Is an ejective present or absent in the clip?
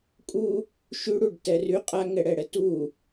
present